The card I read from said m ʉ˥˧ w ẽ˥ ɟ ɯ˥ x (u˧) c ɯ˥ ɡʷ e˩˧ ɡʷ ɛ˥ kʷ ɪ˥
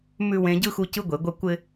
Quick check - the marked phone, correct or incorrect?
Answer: correct